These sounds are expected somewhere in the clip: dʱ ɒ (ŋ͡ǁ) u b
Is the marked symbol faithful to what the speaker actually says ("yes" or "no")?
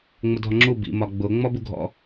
yes